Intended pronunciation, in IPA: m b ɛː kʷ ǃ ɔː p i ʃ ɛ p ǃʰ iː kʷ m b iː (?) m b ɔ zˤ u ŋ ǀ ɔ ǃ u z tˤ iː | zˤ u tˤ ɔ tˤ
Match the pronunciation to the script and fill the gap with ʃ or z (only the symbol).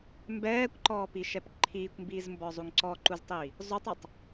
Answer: z